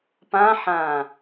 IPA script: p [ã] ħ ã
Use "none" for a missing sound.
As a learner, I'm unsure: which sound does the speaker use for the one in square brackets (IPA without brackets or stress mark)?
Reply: ã